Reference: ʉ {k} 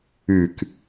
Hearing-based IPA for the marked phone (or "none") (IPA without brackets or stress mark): k